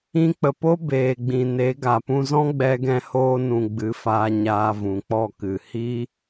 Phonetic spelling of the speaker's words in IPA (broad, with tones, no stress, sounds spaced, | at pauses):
ĩ˧ k͡p ə˨ p o˦ b eː˨ ɡ͡b ĩ˨ n e˨˦ ɡ a˨ p ũ˧ z ɔ̃˦ ɡ͡b ɛ˧ ɡ ɛ̃˧ h oː˧ n ũ˨ ɡ͡b ɨ˨˦ f aː˧ ɲ aː˧ v ũ˨ k͡p ɔ˦˨ k ɨ˨ h i˦